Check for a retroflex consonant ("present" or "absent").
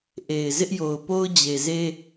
absent